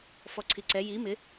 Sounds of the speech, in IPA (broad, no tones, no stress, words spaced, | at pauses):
fɔǀʰiǀɛ ji mɪ